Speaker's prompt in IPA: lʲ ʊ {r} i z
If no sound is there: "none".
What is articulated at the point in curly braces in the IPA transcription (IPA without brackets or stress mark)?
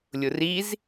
r